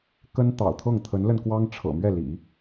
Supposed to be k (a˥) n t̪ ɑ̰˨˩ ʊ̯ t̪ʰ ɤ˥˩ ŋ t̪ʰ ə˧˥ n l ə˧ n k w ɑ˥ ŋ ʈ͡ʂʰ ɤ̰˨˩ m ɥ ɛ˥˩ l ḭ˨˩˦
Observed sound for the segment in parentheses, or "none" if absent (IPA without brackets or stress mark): ə˥